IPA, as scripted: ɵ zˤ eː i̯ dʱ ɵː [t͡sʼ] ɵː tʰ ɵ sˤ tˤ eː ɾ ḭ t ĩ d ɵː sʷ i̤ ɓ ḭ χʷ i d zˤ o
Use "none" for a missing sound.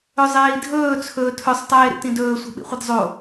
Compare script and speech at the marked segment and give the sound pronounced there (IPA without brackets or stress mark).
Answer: t͡sʰ